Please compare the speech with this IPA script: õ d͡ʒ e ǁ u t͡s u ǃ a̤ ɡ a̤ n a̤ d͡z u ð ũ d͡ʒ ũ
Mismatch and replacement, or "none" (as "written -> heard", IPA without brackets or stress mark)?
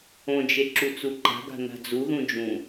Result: none